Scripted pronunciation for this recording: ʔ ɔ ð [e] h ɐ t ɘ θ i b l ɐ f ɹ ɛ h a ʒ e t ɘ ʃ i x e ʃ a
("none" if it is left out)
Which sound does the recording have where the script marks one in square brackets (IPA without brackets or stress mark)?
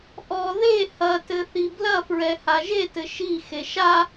e